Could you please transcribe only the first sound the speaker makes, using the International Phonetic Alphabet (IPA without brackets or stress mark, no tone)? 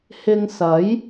h